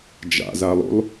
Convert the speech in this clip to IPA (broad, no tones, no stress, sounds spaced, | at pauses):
d͡ʒ a̰ z a lˠ ṵ lˠ